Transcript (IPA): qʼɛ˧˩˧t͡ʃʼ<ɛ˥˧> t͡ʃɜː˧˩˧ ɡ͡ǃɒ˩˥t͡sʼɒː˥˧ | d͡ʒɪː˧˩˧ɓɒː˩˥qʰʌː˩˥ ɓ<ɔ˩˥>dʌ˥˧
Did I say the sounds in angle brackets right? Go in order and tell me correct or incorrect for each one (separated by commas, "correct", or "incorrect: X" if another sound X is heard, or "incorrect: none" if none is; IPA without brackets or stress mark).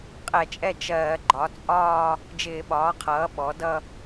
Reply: correct, correct